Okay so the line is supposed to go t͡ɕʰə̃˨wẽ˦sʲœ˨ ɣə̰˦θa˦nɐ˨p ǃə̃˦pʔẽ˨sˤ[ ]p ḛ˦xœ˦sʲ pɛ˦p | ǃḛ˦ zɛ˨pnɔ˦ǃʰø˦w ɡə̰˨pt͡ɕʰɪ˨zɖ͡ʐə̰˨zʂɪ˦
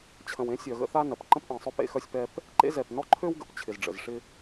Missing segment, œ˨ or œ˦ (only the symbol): œ˦